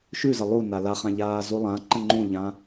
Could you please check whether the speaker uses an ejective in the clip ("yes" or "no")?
no